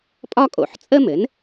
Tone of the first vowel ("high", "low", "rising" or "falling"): high